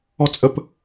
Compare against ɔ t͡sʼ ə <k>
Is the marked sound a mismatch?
yes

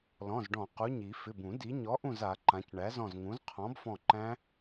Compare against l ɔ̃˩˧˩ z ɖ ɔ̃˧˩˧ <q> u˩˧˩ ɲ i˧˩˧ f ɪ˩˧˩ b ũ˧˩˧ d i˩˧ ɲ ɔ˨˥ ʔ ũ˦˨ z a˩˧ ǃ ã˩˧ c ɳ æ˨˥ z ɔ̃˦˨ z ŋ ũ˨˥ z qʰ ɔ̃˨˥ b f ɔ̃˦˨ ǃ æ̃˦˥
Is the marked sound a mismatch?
no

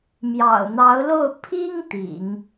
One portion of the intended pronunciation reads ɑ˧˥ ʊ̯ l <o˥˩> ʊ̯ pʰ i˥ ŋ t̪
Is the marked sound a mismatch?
no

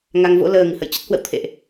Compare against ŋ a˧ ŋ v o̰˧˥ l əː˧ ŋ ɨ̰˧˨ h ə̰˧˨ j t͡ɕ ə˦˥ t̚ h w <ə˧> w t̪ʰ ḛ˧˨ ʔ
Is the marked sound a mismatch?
yes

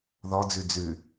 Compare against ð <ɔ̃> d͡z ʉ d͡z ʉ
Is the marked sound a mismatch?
yes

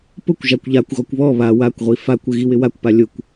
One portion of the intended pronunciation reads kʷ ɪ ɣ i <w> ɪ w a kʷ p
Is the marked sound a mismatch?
no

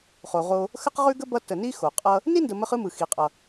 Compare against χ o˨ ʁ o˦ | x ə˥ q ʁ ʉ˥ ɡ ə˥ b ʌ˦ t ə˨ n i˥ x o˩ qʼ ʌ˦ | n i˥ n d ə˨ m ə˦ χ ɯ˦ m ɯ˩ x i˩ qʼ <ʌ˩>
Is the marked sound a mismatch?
no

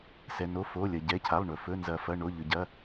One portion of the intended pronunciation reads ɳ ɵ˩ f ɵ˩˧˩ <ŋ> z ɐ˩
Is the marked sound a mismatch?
yes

